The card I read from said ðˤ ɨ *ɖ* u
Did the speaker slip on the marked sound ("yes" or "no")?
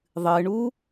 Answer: yes